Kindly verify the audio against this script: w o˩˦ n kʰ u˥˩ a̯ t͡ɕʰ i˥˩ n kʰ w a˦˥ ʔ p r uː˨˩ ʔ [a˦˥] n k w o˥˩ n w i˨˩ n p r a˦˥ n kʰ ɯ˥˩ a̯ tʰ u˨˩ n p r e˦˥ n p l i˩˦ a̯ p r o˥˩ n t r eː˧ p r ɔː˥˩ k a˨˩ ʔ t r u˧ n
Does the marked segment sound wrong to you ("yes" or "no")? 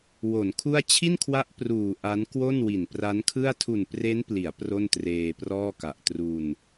no